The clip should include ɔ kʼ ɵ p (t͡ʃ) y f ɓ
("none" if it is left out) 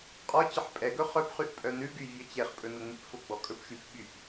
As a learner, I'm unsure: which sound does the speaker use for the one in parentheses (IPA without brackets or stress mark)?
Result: ʃ